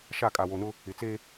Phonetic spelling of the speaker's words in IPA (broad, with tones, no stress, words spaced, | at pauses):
ʃa˦˨kʼa˨wo˨nʊ˦ | ɪ˨t͡se˦